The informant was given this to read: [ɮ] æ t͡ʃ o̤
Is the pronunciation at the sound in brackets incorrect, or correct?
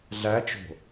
correct